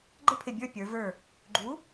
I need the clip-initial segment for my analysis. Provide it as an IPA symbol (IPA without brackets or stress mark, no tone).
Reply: ɡ͡ǃ